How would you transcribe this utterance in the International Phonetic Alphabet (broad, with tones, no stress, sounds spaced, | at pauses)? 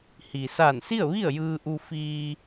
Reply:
h i˩ s a˧˩ n s i˥˨ ə̯ ʋ i˥˨ ə̯ j ɯː˧ ʔ u˧ f iː˧